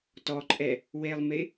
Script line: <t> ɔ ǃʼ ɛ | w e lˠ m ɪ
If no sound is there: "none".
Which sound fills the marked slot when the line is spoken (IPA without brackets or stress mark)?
t